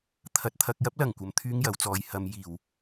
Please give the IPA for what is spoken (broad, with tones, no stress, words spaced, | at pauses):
t̪ʰɐ˨t̚ t̪ʰɐ˨k̚jɐ˧p̚lɐ˨˩ŋ kʷɐ˧mt̪ʰyː˥ŋjɐ˨˥wt͡sɔː˨˧j hɐ˨˧m jiː˨˩w